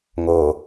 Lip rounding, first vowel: rounded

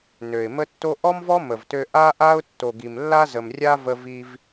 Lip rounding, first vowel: rounded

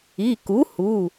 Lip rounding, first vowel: unrounded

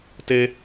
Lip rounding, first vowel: unrounded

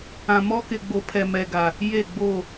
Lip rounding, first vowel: unrounded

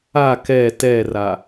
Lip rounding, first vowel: unrounded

